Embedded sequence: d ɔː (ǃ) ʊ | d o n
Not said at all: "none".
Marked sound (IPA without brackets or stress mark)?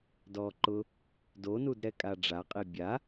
ǃ